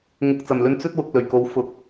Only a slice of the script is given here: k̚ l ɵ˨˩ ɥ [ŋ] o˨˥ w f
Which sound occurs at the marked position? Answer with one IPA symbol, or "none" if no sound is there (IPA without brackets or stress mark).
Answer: k